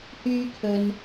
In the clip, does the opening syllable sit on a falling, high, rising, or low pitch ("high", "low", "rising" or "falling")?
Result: high